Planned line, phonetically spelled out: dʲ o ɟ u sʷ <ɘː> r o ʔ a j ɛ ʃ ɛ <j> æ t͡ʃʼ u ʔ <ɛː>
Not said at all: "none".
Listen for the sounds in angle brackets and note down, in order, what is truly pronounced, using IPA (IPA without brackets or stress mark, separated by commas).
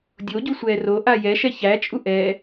ɛː, ç, ɛː